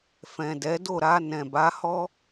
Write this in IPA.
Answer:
f ɛ̃˨ d ɛ˨˦ d o˦˨ ɾ a˧ n ɛ̃˨ b a˨˦ h ɔ˦

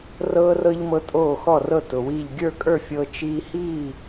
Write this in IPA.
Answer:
r ɤː˧ r ɤ˧ ʎ m ɤ˩˥ tʼ oː˧˩ x ɔ˧˩ r ɤ˧˩ t ʊ˩ w i˧˩ ʎ ɡʲ ə˞˥˨ kʼ ə˞˥˨ fʲ ɤː˧ t͡ʃ iː˧ h iː˥˨

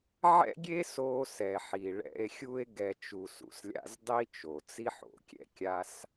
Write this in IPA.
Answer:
ʕ ɛ̰˥ ɡʲ e˥ s o˨ s ɛ˩ ħ i˩ ɭ ɛ̰˨ e̯ xʲ u˦ e̯ ɡ ɛ˨ t͡ʃ u˨ s ṵ˩ s lʲ a̰˦ z dˤ i˥ t͡ʃ o˩ t͡s i˥ ħ o̰˨ kʲ ɛ̰˥ kʲ a˦ s

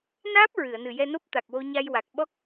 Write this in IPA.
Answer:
n aː˦˥ p̚ ɹ ɨ˨˩˨ ə̯ n ɨ˨˩ j ɛ˧ n o˦˥ p̚ t̪ a˨˩ k̚ w o˧ ɲ a˧ j w a˨˩ k̚ ɓ ɔ˦˥ k̚

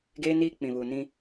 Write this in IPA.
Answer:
ɡ eː˦ n iː˦ k͡p ĩ˨ β uː˨ n ĩ˦

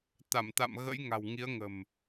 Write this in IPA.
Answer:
t̪ a˧˩ m t̪ a̰˧˨ m ɣ ə̰˧˥ j ŋ a̤˨˩ w ŋ i˨˦ ə̯ ŋ ə̤˨˩ m

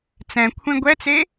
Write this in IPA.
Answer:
t͡s ɛ̃ kʷʰ ẽ ɡʷ ɛ t͡s e

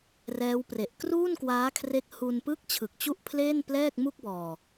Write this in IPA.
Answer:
r ɛː˦˥ w p r e˨˩ ʔ k r uː˥˩ n k w aː˦˥ kʰ r e˦˥ k̚ h u˧ n p ɯ˥˩ k̚ t͡ɕʰ ɯ˨˩ k̚ t͡ɕ u˥˩ ʔ pʰ l eː˥˩ n p l ɛː˥˩ k̚ m u˥˩ k̚ b ɔː˨˩

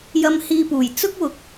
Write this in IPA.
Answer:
j ɐ˧ m h iː˧ p uː˨˩ j t͡s ʊ˥ k̚ w ʊ˨ k̚

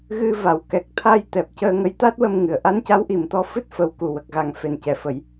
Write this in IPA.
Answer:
ɣ ɨ˧ v a˨˩˨ w k ɛ˨˩ k̚ t̪ʰ a˧ j t̪ ɛ˨˩ p̚ c əː˧ ŋ ə˧˥ j t̪ a˦˥ t̚ w ə˧ m ŋ ɨ˨˩˨ ə̯ ʔ a˧˥ n c a˧˥ w ʔ i˨˩ m t̪ ɔ˧ f ɨ˦˥ t̚ f ə˨˩ w k u˨˩ w ə˨˩ k̚ ɣ a˨˩ ŋ f e˨˩ n c ɛ˨˩˨ f ə˨˩˦ j

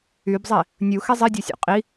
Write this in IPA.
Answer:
y b zˤ i | nʲ u x e zˤ i dʲ o sʲ o̰ qʼ i

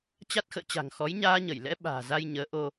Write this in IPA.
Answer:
t͡ɕ a˦˥ t̚ x ə̰ː˧˨ t͡ɕ a̤˨˩ ŋ x ɔ˨˦ j ɲ aː˧ ɲ ə˧˩ j l ɛ̰˧˥ ɓ a̤ː˨˩ z a˧ j ɲ əː˨˦ ʔ o˧

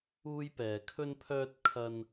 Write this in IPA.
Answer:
uː˥ j p ɛː˧ kʰ ɵ˥ n pʰ œː˥ t̚ kʰ ɐ˥ n

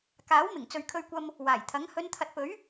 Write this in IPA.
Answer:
k aː˨˥ w m ɪ˨˩ ŋ t͡s ɵ˨ ɥ kʰ ɵ˧ ɥ kʷ ɐ˧ m | w aː˨˩ j t̪ʰ ɐ˨˥ ŋ h ɵ˨˧ n t̪ʰ ɐ˨ t̚ p ɵ˨˥ ɥ

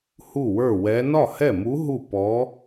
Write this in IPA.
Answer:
h u˥˩ w ə˞˥˩ w ɛ˧˥ n ɒ˥˩ h ɛ˥˩ m u˧˥ ɦ u˥˩ p ɔ˧˥

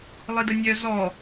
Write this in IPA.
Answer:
lˠ i d ə nʲ œ z ɔ

